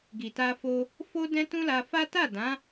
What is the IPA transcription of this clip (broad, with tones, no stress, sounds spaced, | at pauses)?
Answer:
ɡ i˨ t a˧ f o˧ | f o˦ d ɛ̃˦ t ũ˦ l a˧ f a˦ t a˦˨ d ã˨˦